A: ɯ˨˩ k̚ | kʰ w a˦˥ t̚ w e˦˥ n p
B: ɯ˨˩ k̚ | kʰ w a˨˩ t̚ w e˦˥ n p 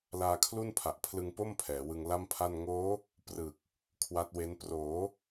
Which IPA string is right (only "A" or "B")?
A